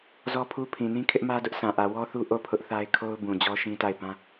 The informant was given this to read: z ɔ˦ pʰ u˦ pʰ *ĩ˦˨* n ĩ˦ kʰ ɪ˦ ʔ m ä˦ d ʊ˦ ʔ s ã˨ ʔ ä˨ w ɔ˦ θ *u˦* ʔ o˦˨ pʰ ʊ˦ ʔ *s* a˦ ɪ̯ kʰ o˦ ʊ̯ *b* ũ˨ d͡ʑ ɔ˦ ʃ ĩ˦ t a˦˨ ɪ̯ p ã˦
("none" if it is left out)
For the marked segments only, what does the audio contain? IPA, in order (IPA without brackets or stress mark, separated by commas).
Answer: ĩ˨, u˦, θ, b